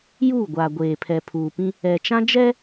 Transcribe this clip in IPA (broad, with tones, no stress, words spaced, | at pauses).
juː˦˨ɡʷaː˨ ɡʷeː˨pʰɛ˨pʰuː˨pĩ˦ | ɛ˨t͡ʃã˦d͡ʒɛ˦